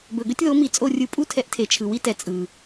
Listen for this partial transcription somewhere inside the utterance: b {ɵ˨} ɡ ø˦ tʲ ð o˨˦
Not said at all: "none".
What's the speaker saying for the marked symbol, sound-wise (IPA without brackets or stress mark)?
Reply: ɵ˨